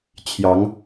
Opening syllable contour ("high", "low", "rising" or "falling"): rising